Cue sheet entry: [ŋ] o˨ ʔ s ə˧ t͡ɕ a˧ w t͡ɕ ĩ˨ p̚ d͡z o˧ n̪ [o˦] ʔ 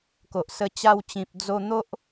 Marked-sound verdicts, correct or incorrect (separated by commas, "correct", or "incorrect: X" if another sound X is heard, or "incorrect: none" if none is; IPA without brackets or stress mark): incorrect: k, correct